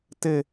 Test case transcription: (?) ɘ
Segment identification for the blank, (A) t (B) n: A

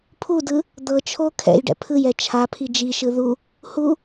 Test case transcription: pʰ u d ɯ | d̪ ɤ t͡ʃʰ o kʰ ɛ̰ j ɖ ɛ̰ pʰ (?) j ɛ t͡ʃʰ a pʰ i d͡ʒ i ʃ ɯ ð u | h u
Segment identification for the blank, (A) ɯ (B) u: A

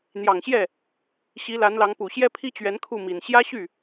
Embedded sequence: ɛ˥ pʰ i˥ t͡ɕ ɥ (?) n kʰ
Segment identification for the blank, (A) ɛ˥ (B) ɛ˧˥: B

